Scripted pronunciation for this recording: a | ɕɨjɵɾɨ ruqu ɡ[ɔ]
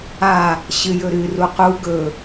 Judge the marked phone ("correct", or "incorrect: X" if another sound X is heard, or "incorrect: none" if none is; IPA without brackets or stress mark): incorrect: ɵ